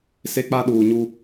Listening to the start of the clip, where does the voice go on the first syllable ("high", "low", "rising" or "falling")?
high